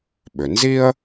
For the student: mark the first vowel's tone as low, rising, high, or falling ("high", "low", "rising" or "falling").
low